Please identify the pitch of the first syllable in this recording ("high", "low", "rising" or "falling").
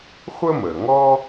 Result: high